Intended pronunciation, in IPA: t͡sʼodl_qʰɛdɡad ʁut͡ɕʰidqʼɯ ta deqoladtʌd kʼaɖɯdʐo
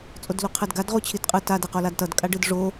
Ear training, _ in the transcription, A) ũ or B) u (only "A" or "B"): B